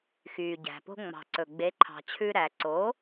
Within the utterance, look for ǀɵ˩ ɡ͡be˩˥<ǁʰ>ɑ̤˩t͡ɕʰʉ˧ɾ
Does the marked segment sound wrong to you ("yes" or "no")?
yes